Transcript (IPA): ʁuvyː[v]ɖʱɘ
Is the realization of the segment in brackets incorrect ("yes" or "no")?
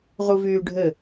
yes